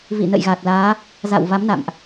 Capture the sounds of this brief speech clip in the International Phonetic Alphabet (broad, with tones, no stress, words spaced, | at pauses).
vḭ˧˨nə̰˧˨jɣa˨˩t̚laː˨˦ | za̰˧˨wva˨˦mna̰˧˨mʔ